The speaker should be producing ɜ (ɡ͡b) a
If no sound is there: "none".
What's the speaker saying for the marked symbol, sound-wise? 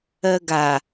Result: ɡ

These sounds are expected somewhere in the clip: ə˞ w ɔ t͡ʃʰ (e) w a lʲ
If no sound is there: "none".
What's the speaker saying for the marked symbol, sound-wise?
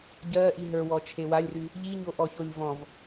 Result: e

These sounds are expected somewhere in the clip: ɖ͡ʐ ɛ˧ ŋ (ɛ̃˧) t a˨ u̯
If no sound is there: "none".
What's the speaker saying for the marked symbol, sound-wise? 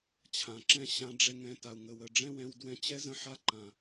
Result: ɛ̃˧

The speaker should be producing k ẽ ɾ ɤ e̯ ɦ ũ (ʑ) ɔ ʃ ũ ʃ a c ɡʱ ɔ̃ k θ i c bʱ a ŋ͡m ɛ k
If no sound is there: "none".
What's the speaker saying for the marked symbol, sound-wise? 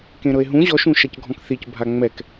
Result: ʑ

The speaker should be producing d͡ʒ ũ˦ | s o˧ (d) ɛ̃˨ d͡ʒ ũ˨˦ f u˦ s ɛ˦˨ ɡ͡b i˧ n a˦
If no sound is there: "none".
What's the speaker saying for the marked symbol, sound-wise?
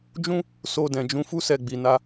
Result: d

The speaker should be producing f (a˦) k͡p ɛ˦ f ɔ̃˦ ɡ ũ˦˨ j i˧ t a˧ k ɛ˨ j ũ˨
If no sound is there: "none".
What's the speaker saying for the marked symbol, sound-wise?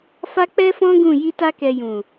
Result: a˦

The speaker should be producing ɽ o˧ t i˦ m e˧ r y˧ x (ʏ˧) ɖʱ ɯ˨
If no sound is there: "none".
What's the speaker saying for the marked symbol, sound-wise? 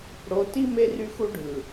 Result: u˧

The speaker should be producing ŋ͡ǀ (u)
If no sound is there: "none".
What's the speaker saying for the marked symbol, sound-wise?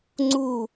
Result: u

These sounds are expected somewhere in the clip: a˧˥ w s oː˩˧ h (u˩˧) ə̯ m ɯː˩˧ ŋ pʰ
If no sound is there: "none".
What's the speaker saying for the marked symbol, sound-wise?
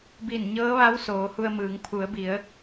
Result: u˧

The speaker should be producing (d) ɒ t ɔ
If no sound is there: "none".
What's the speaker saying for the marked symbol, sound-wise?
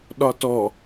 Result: ɗ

